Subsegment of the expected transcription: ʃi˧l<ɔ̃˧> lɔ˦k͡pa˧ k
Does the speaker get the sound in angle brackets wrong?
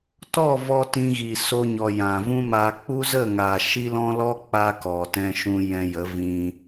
no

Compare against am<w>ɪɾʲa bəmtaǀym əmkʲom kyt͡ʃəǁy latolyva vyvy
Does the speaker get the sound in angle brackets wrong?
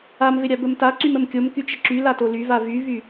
yes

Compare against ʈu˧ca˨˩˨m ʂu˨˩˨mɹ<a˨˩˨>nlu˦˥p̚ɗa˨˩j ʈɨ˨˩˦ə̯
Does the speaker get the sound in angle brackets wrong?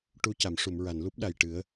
no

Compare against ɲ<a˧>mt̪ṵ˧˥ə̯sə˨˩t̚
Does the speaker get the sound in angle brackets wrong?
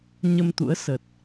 yes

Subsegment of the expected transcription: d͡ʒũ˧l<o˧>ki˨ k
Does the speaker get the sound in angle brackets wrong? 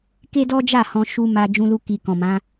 yes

